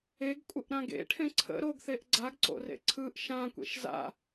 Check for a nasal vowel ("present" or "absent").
present